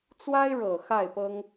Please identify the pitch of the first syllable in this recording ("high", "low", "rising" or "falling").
high